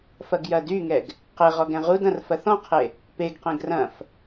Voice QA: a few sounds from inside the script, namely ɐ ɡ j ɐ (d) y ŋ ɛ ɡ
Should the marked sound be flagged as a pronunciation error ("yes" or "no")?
no